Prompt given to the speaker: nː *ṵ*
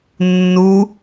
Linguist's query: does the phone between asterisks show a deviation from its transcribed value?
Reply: yes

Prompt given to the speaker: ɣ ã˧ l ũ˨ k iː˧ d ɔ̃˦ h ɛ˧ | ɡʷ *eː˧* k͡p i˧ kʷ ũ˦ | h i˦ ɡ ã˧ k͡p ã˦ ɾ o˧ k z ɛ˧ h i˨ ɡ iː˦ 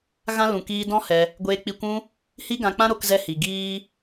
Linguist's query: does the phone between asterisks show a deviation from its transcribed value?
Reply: no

